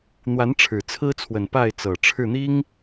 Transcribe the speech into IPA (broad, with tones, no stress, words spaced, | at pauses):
n̪wa˨˦n ʈ͡ʂʰɻ̩˨˩t͡sʰɹ̩˦t͡sʰwə˨˩n pa˥˨ɪ̯ t͡sɤ˨˩ʈ͡ʂʰɻ̩˥˨n̪i˦ŋ